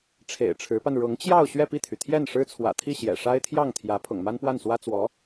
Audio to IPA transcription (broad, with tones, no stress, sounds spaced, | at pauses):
ʈ͡ʂʰ ḛ˨˩ ɪ̯ ʈ͡ʂʰ ɻ̩˧˥ p a˧ n ɻ ʊ˧˥ ŋ t͡ɕ j ɑ˥˧ ʊ̯ ɕ ɥ ɛ˥˧ p i˥˩ t̪ʰ y˩ t̪ʰ j ɛ˥˩ n ʂ ɻ̩˥ t͡sʰ w ä̰˨˩ t̪ʰ i˥˩ ɕ j ɛ̰˨˩ ʂ a˥ ɪ̯ t̪ʰ j ɑ˥˩ ŋ t̪ʰ j ä˧˥ pʰ ʊ̰˨˩ ŋ m a˥ n p w a˥˩ n s w ä˥ t͡s w ɔ˧˥